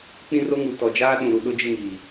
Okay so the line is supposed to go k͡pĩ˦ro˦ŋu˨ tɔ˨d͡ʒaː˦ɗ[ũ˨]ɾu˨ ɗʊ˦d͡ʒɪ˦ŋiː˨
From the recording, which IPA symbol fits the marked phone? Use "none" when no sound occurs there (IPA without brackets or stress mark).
ũ˨